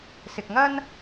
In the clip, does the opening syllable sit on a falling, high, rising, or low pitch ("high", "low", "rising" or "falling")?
low